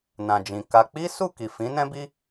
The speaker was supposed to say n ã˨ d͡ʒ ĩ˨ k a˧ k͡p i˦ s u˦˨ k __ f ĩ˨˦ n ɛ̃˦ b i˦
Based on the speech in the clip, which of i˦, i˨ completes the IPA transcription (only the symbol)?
i˨